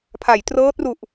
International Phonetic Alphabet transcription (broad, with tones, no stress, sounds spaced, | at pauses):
pʰ a˩˦ j t r ɤː˦˥ t̚ r u˨˩ ʔ